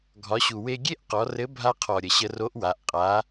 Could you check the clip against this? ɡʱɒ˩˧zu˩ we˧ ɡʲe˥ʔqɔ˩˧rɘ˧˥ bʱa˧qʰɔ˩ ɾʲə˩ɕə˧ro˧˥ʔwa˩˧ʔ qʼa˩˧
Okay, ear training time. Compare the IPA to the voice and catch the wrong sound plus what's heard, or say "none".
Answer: z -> ɕ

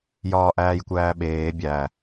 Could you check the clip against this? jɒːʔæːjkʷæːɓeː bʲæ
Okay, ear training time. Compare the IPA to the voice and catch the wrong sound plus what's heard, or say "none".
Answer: none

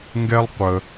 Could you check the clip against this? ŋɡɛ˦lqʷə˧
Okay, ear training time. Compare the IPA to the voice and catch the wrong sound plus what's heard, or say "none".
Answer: l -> lˠ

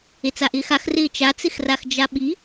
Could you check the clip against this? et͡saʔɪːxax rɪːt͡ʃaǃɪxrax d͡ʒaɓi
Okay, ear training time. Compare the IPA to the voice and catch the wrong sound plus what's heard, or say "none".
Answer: ǃ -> t͡s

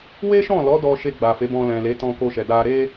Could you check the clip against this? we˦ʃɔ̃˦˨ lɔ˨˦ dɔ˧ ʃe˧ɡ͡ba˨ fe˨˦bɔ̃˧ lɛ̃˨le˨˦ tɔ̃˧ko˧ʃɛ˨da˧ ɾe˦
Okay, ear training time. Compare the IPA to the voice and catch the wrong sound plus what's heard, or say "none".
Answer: none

